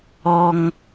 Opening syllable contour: high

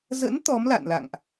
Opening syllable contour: rising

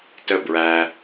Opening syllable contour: falling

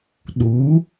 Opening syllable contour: rising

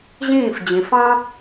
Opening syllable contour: falling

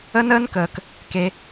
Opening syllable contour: high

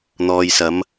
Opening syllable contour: low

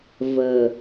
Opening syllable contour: low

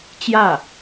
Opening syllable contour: falling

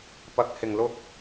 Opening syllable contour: low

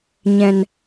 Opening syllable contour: low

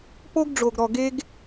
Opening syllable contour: high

